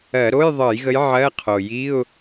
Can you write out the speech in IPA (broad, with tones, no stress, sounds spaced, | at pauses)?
ɜ˧˩˧ ɾ o˧˥˧ j ðˤ ɤ˧˩˧ j ɣ ə˨˦ j ʕ ɜ˧˥˧ qʰ o˨˩ j i˧˥˧ ʊ̯